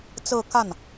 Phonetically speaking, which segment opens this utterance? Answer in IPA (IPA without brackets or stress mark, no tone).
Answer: t͡s